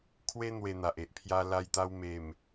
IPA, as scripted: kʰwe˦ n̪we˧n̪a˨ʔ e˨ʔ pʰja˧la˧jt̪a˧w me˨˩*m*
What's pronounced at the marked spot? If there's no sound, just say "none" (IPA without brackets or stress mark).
m